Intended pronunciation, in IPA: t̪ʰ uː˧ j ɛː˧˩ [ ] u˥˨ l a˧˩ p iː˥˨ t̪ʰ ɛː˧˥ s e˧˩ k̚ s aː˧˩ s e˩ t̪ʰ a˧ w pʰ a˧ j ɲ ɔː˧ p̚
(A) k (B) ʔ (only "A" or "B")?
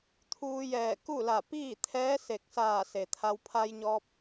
A